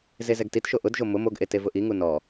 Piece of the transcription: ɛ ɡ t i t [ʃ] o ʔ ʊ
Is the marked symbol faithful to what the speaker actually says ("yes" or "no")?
yes